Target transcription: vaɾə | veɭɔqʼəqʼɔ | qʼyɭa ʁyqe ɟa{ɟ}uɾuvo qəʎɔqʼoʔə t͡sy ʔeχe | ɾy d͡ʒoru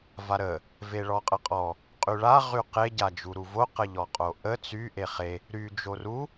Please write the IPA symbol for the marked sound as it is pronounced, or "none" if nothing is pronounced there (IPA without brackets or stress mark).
d͡ʒ